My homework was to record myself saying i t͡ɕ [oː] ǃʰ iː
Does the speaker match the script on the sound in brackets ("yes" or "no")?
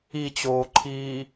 yes